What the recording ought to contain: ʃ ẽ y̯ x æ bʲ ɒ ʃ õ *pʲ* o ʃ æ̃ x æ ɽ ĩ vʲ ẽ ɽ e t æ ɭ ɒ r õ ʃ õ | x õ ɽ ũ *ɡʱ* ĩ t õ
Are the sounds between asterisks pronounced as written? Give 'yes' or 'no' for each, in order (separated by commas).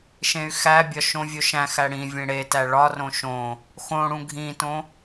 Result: no, yes